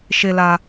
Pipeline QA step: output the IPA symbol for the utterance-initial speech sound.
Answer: ʃ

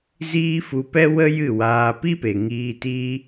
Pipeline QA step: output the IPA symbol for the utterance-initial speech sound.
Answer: z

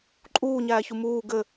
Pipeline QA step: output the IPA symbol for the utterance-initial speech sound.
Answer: ǃʼ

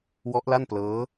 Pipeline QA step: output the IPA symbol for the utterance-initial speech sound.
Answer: w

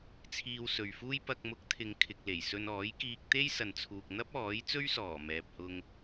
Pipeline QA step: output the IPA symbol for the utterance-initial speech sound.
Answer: t͡sʰ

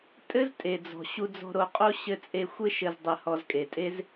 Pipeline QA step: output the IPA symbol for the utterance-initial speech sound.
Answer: tʼ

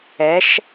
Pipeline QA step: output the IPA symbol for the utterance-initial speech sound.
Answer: ɛ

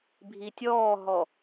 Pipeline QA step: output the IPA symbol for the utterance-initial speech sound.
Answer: bʱ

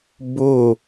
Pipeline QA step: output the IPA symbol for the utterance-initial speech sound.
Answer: b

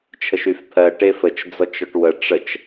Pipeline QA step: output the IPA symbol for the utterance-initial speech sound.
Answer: t͡ʃʰ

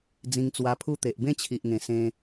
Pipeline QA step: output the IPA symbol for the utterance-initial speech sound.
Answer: d͡z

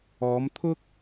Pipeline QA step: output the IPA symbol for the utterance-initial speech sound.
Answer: ɔː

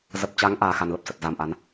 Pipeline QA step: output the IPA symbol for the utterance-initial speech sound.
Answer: z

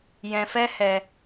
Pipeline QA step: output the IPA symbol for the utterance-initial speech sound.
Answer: j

